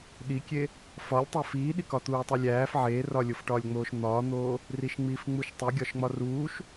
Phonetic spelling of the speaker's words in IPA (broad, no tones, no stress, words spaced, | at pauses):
ɗikʲe | fɒlʲ tˤæfiːɗikɒ t̪uːtˤilʲæːf ʕeːrɒlʲofʈɒːlʲ ŋ͡moːʃn̪ɒːn̪oː | riʃŋ͡miːfŋ͡muʃtˤi ɡʲɒʃŋ͡mɒruːʃ